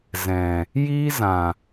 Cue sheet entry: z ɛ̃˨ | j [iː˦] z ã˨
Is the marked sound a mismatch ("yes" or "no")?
no